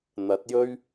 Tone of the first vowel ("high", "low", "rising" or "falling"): rising